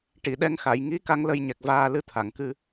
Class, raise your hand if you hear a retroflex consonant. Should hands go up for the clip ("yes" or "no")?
yes